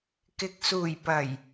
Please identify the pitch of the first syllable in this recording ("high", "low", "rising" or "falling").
low